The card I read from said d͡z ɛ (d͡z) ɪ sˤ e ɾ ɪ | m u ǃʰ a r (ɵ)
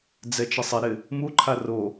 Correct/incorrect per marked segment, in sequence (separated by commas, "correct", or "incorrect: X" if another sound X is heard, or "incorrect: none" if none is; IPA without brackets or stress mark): incorrect: t͡ʃ, incorrect: o